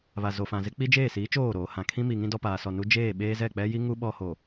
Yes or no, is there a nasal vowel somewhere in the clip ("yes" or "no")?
yes